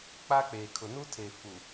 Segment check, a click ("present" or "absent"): absent